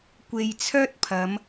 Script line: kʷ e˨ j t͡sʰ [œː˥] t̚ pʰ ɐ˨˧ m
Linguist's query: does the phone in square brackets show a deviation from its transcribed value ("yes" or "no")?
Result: no